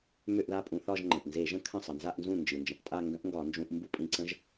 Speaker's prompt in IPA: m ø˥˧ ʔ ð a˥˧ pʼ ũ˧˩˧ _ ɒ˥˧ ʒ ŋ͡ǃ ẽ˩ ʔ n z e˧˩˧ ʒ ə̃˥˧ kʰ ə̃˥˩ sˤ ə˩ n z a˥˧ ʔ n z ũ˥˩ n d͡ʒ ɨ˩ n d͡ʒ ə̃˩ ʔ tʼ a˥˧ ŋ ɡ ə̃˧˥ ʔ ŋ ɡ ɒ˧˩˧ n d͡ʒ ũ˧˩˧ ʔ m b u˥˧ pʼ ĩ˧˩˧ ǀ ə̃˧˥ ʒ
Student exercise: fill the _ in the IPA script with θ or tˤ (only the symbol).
θ